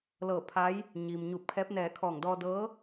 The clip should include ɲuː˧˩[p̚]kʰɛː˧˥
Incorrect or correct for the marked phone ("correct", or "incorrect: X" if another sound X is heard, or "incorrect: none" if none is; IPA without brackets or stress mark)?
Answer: correct